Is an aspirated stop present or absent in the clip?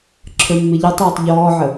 present